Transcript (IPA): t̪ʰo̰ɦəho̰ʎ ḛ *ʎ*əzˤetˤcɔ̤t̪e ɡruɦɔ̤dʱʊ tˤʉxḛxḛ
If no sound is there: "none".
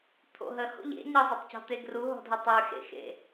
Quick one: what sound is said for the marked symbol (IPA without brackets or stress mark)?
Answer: ɲ